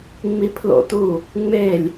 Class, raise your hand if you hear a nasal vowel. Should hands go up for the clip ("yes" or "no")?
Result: no